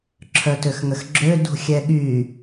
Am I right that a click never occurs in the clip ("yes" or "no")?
no